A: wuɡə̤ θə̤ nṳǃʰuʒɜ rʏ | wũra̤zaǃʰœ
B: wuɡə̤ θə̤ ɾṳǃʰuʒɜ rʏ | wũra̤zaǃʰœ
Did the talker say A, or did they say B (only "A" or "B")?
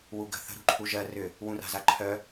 B